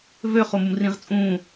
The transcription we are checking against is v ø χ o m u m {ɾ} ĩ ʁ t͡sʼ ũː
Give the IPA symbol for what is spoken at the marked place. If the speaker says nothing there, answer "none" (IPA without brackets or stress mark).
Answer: r